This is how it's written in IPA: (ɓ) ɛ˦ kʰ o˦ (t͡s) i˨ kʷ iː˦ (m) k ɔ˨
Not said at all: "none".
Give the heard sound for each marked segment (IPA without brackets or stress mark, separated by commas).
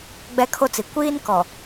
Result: ɡ͡b, t͡s, n